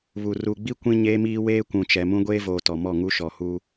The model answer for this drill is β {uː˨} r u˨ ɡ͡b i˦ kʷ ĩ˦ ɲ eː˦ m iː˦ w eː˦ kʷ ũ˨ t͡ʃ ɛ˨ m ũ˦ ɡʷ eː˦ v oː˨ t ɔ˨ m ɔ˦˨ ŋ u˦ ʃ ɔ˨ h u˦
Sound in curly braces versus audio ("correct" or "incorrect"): incorrect